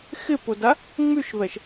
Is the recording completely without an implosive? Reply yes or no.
yes